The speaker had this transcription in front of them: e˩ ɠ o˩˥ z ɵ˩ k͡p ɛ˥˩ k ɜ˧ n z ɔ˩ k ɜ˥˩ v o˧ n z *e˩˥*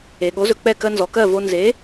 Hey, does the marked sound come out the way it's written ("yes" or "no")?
yes